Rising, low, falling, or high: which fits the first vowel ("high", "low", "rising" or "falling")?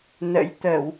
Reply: rising